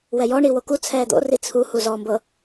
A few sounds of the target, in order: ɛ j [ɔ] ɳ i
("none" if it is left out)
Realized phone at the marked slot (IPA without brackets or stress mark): ɔ